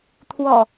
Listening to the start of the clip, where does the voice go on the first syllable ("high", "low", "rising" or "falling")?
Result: low